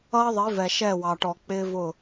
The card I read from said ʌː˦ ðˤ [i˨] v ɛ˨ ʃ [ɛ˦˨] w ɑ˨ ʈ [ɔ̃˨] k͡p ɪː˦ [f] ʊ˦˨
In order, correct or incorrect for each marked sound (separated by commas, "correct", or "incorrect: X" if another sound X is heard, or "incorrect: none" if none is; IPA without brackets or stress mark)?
incorrect: i˨˦, correct, incorrect: ɔ˨, incorrect: v